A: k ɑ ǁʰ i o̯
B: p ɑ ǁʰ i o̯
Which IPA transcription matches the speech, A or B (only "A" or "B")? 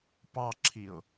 B